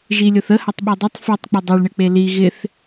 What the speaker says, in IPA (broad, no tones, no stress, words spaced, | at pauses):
ʒilʲoθə hɐtˤɓidˤɘtˤ fytˤk͡pɪ dˤɘɭɳɪk͡pe li ɣɪθ